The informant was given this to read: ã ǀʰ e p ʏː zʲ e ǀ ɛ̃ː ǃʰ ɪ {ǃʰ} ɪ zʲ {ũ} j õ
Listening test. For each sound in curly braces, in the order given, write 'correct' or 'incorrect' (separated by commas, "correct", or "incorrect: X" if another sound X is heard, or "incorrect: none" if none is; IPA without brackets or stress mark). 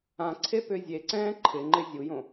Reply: incorrect: ŋ͡ǃ, incorrect: u